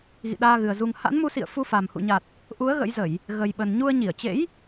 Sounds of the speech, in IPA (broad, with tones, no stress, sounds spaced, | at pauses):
ɣ ḭ˧˨ ɗ aː˧ ɣ ɨ˨˩ ə̯ z u˨˩ ŋ h a̰˧˥ n m u˨˦ s ḭ˧˨ ə̯ f u˧ f a˨˩ m h ṵ˧˨ ɲ a˨˩ t̚ | ʔ u˨˦ ə̯ ɣ ə̰˧˥ j z ə˧˩˨ j | ɣ ə˨˩ j ɓ ə˨˩ n ɲ u˧ ə̯ ɲ i˧˩ ə̯ t͡ɕ ḛ˧˥ j